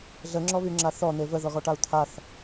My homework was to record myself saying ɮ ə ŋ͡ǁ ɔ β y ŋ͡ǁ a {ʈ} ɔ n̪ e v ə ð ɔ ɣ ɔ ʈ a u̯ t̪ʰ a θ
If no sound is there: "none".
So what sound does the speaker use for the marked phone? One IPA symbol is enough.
θ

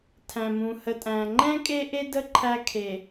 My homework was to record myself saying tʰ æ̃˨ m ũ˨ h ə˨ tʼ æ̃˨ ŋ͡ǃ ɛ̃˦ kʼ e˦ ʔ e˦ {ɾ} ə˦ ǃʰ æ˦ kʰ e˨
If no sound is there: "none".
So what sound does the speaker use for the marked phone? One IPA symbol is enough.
d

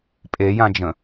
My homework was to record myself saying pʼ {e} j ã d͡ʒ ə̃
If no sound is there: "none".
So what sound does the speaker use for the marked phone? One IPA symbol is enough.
e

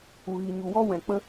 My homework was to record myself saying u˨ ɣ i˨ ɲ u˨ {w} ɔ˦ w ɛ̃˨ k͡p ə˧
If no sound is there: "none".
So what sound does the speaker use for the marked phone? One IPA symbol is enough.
w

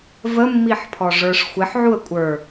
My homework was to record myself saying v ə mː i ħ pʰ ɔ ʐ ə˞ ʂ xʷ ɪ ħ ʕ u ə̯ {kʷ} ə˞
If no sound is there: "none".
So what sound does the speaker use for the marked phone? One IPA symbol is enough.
kʷʼ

